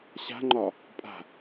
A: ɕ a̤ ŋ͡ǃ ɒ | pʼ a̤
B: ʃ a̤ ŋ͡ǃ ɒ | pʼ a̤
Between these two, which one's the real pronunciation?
A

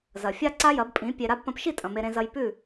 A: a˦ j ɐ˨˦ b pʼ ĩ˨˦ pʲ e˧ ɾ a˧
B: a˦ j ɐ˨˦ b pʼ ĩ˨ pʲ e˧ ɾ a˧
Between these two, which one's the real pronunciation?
A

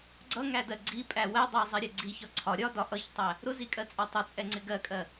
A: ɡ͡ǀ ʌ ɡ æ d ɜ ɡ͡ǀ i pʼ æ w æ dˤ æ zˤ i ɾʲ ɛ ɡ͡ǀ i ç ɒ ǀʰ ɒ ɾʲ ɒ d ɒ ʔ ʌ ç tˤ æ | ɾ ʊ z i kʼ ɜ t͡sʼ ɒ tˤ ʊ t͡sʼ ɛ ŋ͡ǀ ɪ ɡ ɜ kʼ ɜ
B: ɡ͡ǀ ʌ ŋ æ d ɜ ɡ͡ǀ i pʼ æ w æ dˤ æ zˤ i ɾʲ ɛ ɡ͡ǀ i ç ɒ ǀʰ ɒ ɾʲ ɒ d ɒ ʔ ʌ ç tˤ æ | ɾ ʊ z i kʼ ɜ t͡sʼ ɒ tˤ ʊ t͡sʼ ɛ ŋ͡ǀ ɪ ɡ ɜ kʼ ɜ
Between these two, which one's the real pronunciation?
B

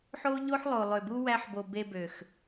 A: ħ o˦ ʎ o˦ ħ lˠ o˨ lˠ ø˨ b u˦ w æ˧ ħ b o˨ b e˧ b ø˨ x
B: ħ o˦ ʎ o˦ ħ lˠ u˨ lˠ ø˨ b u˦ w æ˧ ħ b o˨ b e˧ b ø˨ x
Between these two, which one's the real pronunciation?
A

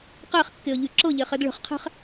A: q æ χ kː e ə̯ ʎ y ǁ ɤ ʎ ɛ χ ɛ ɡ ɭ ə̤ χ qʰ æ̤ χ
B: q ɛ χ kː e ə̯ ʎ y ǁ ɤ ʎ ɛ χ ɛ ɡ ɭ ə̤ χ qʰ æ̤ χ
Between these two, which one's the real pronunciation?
A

